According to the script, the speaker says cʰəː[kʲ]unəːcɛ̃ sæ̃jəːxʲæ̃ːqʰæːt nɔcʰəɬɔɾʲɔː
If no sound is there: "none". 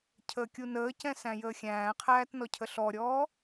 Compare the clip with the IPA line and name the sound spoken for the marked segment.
kʲ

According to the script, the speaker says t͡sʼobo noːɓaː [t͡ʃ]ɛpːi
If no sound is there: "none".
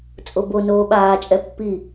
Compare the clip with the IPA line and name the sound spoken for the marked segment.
t͡ʃʼ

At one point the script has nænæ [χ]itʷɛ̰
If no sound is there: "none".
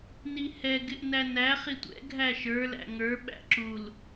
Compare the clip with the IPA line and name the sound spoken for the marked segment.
χ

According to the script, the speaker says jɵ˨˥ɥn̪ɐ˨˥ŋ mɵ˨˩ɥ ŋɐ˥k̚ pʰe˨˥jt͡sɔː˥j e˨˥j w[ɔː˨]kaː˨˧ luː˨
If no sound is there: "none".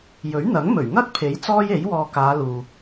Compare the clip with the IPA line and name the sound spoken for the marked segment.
ɔː˨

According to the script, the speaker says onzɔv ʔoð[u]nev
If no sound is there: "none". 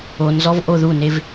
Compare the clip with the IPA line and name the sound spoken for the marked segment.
u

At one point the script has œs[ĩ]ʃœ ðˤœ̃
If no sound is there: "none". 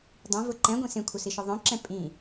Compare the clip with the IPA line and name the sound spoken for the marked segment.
i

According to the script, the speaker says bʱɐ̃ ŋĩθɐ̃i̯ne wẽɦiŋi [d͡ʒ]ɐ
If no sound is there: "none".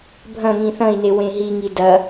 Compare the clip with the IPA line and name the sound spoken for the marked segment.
d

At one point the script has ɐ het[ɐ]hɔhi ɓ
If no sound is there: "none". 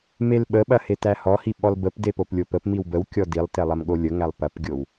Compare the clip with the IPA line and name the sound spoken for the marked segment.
æ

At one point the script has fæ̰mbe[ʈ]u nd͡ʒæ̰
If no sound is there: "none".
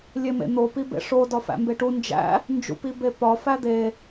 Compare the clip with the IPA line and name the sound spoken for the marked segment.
ʈ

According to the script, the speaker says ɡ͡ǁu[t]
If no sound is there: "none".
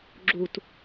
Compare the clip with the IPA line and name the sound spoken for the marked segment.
t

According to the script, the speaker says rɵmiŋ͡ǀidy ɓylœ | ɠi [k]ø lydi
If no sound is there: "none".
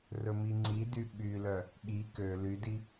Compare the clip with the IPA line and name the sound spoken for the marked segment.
k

